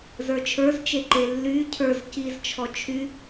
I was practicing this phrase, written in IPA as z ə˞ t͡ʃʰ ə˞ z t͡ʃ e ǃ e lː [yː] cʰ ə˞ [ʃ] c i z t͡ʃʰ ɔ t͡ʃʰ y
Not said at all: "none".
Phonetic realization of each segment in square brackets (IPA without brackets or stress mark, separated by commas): yː, z